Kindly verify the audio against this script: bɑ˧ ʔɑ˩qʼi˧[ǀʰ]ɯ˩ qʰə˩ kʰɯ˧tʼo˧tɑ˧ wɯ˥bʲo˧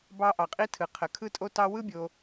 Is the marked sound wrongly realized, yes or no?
yes